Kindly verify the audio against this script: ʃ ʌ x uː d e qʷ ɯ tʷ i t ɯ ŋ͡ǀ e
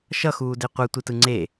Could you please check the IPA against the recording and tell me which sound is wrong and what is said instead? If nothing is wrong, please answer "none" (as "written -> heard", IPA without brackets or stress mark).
none